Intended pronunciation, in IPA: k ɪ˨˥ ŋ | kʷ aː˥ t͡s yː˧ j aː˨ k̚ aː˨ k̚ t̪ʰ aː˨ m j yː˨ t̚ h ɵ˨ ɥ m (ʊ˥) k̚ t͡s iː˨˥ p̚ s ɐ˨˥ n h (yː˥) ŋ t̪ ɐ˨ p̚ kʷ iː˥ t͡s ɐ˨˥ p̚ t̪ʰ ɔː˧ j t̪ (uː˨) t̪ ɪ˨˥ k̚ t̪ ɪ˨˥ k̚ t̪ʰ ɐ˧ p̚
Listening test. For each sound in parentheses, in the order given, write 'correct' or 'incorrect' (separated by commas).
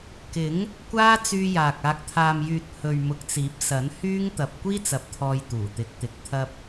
incorrect, correct, incorrect